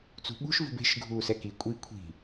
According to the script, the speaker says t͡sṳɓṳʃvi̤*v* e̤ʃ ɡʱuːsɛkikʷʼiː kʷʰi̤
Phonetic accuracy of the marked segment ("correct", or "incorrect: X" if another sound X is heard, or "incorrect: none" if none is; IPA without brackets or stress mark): incorrect: b